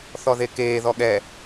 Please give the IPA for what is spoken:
θ ɔ ð e k eː ð ɔ ɠ ɛ

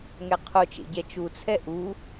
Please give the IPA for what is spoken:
ŋ ɛ qʰ o t͡ʃ ḛ ɟ ɛ t͡ʃ u t͡sʰ ɛ ʔ u

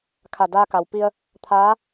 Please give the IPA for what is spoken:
kʰ a˧˩ d aː˧ k a˩ w p i˧ ə̯ | t̪ʰ aː˧˥

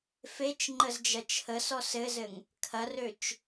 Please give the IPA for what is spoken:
f e t͡ʃ ŋ͡ǃ ə z d͡ʒ ɐ t͡ʃʰ ə s ɔ s ɘ z ɘ ŋ | kʰ ɐ r ø t͡ʃ

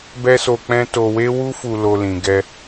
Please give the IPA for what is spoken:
b ɛ˦ s o˧ k͡p ɛ̃˦ t o˧ w e˦ w u˦ f u˧ l o˧ l ĩ˨ ɡ ɛ˧

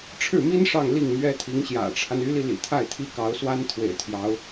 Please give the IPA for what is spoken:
ʈ͡ʂʰ ɻ̩˥˩ m i˥ n ʂ ɑ˥˧ ŋ l i˥˩ ŋ m ɥ ɛ˥ t̪ʰ i˧˥ ŋ ɕ j ä̰˨˩ ʈ͡ʂʰ a˦ n y˧˥ l i˧ l ḭ˨˩ t̪ʰ a˥˩ ɪ̯ t̪ʰ i˥ k ɑ˧˥ ʊ̯ s w a˥ n t̪ʰ w ḛ˨˩ ɪ̯ t̪ʰ j ɑ˧˥ ʊ̯

